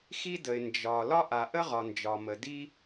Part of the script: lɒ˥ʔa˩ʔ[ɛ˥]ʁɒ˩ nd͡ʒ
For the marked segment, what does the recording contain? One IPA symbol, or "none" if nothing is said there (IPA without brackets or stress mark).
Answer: ə˥